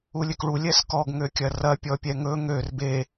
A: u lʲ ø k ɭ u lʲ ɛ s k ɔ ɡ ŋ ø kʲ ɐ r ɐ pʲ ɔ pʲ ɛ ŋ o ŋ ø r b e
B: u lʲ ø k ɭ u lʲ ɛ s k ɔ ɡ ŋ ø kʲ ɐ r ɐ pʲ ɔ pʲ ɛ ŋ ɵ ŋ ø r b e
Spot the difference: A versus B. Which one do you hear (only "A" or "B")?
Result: B